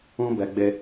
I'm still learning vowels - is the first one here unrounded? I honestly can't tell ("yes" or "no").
no